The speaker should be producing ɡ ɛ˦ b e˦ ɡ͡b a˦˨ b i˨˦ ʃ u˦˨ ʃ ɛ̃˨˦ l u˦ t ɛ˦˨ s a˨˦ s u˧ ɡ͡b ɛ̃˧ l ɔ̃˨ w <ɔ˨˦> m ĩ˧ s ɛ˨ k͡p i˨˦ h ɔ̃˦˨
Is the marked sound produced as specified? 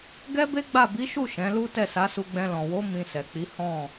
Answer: no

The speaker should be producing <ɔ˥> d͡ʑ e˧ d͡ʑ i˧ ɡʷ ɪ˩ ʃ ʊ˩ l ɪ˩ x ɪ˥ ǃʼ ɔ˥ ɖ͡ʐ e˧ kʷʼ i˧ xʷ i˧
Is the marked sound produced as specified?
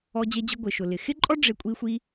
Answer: no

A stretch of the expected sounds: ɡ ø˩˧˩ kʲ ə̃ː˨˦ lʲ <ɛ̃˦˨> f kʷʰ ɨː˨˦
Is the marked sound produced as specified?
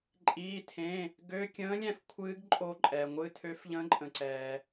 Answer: yes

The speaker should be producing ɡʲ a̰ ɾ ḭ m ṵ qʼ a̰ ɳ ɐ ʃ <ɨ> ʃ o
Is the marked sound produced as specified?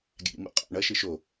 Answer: yes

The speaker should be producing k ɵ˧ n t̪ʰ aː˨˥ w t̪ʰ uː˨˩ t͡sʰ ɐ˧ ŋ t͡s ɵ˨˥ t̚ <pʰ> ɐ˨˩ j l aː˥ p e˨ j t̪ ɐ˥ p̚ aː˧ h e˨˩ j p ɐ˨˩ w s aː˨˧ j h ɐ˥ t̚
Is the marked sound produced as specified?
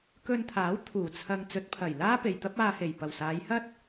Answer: yes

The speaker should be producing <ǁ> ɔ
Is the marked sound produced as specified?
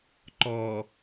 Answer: no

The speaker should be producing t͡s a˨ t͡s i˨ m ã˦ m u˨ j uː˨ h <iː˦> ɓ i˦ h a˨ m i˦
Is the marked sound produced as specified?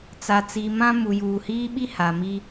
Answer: yes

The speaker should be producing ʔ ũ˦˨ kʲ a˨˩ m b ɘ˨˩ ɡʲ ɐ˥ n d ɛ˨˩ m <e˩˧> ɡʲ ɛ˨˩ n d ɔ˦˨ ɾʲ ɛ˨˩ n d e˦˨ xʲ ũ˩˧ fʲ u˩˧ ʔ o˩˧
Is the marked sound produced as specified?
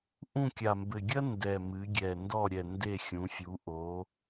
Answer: no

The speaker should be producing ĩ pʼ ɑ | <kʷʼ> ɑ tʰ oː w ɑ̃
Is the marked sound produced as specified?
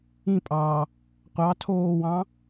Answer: no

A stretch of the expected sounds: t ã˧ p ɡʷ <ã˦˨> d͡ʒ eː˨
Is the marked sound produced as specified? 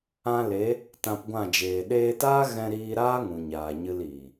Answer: yes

